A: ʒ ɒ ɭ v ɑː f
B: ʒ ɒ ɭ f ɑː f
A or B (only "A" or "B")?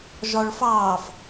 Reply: B